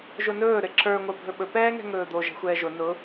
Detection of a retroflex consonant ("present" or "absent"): absent